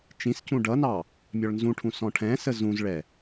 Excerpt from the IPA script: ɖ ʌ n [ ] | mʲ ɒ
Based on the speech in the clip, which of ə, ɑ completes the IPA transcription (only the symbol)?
ɑ